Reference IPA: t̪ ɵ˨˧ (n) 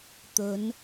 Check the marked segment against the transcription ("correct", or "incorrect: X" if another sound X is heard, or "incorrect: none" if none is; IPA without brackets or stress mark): correct